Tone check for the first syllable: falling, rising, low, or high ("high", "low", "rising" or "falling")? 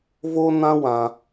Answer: high